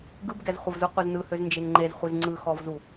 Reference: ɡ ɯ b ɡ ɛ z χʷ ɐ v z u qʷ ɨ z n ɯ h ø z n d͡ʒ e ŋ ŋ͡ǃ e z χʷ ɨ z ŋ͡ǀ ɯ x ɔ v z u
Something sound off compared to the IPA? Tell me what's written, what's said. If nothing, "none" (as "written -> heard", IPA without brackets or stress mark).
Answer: none